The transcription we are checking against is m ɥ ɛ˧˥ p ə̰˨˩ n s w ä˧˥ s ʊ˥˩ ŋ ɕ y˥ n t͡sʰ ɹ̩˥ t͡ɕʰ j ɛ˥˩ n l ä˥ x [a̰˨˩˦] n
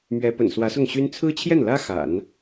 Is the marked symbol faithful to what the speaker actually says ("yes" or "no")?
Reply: yes